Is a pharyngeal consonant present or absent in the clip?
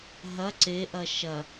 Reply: absent